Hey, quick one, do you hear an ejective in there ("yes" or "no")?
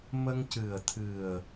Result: no